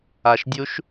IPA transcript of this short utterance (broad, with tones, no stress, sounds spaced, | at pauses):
a˨ ʃ dʲ u˦˥ ʃ